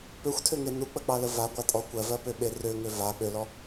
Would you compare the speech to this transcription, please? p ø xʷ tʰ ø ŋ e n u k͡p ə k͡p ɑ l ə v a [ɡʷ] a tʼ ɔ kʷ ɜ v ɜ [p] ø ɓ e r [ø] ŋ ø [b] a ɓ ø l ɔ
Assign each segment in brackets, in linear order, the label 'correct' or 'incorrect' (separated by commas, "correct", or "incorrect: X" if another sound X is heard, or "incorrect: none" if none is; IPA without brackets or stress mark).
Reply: correct, correct, correct, incorrect: v